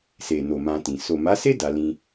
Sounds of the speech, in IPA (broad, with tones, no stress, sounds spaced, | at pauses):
s e˨ n o˨ m ã˧ t ĩ˨ s o˨ m a˨˦ s e˦ d a˧ l ĩ˧